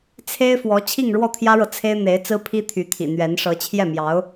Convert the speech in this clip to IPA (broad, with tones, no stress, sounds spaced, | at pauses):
t͡sʰ e˥ ɪ̯ f w ɔ˧˥ t͡ɕʰ i˥˧ ŋ ɻ w ɔ˥˩ t̪ʰ j ä˥ ɻ ɤ˨ t͡sʰ e˥ ɪ̯ n̪ e˧˥ ɪ̯ t͡s ɹ̩˥ pʰ i˥ t̪ʰ y˧˥ t̪ʰ ḭ˨˩ n̪ ɥ ɛ˧˥ n ʂ ɤ˧˥ t͡ɕʰ j ɛ˥˩ m j ɑ˧˥ ʊ̯